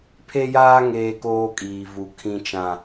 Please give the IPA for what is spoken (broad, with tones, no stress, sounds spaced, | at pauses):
pʰ e˦ j aː˦ ŋ eː˦ k oː˦ kʼ iː˨ v u˨ kʰ ĩ˨ t͡ʃ ã˨